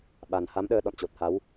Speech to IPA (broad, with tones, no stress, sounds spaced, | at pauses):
ɓ a˨˩ n h a˨˦ m ɗ əː˧ ɗ ɔ̰˧˨ n t͡ɕ o˨˩ t̚ h a˨˦ w